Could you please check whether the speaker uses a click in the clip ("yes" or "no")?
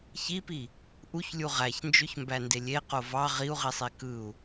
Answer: no